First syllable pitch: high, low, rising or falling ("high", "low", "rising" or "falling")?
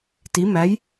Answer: rising